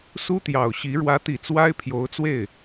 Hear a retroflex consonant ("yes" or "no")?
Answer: yes